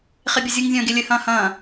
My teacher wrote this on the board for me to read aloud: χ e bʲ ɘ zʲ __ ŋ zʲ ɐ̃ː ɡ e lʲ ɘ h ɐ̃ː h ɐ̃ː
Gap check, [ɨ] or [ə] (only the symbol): ɨ